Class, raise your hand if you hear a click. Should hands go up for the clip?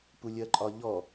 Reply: yes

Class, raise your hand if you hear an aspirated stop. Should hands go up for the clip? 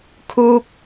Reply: yes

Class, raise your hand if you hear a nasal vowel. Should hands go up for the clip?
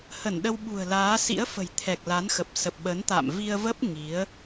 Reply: no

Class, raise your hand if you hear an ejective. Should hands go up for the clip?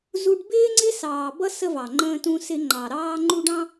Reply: no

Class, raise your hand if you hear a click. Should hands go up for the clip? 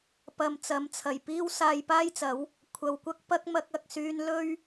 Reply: no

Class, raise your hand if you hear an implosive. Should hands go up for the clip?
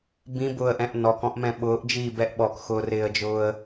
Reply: yes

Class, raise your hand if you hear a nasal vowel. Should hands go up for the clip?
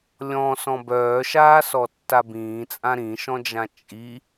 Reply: yes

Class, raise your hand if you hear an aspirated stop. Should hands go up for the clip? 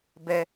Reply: no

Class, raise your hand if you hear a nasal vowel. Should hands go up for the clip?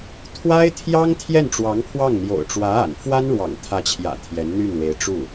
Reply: no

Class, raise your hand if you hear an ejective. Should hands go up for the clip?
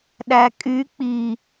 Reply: yes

